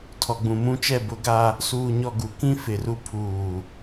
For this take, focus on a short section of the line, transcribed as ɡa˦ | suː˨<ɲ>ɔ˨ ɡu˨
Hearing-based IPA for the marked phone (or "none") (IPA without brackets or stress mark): ɲ